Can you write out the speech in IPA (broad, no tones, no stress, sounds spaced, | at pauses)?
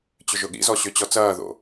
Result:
t͡ɕ ʏ ʒ ʊ ɠ ḭ z ɔ ɕ ʏ t͡ɕ ɔ t͡s ɐː ð o̰